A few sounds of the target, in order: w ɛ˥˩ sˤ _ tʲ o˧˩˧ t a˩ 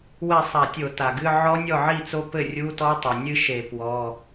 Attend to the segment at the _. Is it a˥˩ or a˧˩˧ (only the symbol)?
a˧˩˧